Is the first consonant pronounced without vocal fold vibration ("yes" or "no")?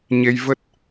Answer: no